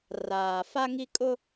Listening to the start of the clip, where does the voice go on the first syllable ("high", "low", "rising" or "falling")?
low